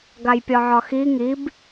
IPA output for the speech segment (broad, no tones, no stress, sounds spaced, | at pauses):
ɡ a j pʲ ɒ ʕ ɒ x i ŋ i b